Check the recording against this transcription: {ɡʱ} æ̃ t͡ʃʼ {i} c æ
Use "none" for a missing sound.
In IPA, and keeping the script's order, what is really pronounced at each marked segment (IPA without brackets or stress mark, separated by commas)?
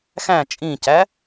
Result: x, ĩ